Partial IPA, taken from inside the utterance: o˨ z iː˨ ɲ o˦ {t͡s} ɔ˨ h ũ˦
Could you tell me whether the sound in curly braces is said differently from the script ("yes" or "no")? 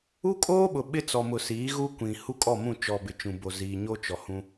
yes